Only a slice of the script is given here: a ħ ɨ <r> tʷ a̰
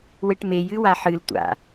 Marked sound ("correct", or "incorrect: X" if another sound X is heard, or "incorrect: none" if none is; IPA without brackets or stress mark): incorrect: l